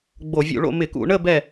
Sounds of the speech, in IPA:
ɡ͡b o˧˩˧ vʲ ṵ˧˩˧ ɭ o̰˥˨ m ɪ˧˩˧ k ṵ˧˩˧ ɳ ə˥˨ b ɛ˥˨

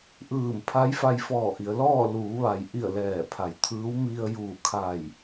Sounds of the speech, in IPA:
ʔ ɯː˧˩ m pʰ a˧˥ j f a˧ j f ɔː˧˩ ʔ i˩˧ ə̯ l ɔː˥˨ l uː˩˧ ʋ a˩ j ʔ i˧˩ ə̯ l ɛː˧˩ pʰ a˩˧ j t̪ʰ ɯː˧˥ w m i˧ ə̯ j uː˧˩ kʰ a˧˩ j

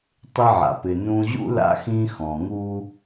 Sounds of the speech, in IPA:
tˤ ɪ˧ ʕ a̰˩ p ɪ˩ n ũ˧ ʑ ṵ˥ l a̰˧ x ĩ˧ x ɔ̃˩ ŋ u˥

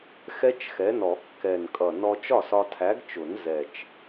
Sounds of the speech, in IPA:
x ɛ˦˥ t͡ʃ x ɛ˨˥ n ɔ˨˩˦ kː ɛ˨˩ n kʼ ʌ˨˩ n ɔ˧ t͡ʃ ɒ˥˩ s ɒ˧ tʰ æ˨˥ ɡ t͡ʃ ʊ˨˩˦ n z ɛ˨˩ t͡ʃ

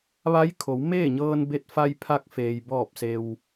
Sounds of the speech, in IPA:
ʋ a˧˥ j kʰ o˩˧ w m eː˥˨ ɲ ɤː˧ n b e˧ t̚ f a˧ j pʰ a˧ k̚ f eː˩ j b ɔː˧˩ p̚ s e˩ w

